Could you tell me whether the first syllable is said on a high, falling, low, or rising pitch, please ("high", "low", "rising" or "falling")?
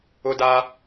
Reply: high